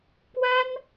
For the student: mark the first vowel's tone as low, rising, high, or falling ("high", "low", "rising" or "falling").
high